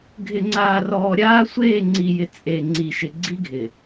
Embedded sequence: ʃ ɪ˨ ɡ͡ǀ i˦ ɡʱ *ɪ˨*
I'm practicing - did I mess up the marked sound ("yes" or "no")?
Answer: no